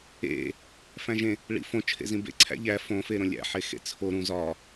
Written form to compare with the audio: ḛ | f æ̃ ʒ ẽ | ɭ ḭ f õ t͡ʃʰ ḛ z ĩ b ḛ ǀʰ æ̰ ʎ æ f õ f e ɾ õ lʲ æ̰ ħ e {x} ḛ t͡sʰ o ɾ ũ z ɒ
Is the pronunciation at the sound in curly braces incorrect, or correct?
correct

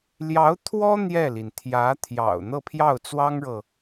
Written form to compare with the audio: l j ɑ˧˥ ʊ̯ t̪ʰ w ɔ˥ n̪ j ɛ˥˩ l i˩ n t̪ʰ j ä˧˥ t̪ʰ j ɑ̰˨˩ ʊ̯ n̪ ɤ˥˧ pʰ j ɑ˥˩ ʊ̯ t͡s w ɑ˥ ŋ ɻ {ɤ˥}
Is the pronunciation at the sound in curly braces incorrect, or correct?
incorrect: ɤ˨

